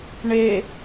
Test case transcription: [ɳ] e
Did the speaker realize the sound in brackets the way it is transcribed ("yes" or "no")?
yes